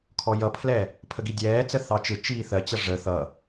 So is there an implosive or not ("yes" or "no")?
no